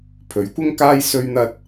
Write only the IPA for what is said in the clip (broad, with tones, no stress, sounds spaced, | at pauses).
pʰ ɵ˨˥ ɥ kʷ ɪ˥ ŋ k aː˥ j s ɵ˧ ɥ n̪ ɐ˧ t̚